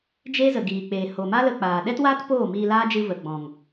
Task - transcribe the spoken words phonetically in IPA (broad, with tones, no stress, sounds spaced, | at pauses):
d͡ʒ e˦ z ə˨ ɡ iː˨ k͡p eː˨ h o˨ m a˦ l ə˧ k͡p aː˨ ɗ ɛ˦ t w aː˦ t p oː˦˨ m iː˧ l aː˦ d͡ʒ ɨ˧ v ə˨ ɡ͡b ɔ̃˨ ŋ